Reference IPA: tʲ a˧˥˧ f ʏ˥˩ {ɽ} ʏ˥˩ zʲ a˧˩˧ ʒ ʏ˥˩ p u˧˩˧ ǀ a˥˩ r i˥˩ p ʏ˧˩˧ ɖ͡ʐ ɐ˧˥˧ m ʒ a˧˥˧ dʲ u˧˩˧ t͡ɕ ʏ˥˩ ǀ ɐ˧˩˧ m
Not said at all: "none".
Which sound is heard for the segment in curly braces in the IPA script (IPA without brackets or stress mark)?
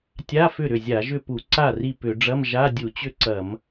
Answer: ɾ